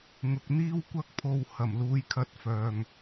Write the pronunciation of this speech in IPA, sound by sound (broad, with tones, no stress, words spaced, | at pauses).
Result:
ŋʊ˨k̚n̪iː˥wkʷɐ˥k̚pʰo˧w hɐ˨˩mluː˨˧jkʰɐ˧t̚ fœː˧ŋ